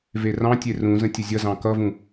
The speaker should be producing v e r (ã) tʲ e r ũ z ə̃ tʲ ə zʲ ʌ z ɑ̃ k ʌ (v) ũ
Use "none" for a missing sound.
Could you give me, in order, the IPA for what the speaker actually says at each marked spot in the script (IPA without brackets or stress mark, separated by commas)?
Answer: ɑ̃, v